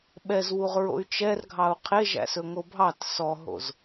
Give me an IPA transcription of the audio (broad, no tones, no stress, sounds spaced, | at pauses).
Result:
ɓ ɛ z w u ʁ ɹ o̰ y̯ t͡ʃ ɛ r ɡʱ ɑ u̯ qʰ e ʒ æ̰ s ɵ ŋ o bʱ ɑ t s ɔ ɦ o̰ z